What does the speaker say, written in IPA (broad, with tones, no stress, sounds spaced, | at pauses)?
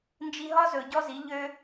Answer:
n d͡ʒ i˧ ɦ ɒ˦ z ɵ˨ ɟ ɔ˦ z i˨˦ ʎ ø˦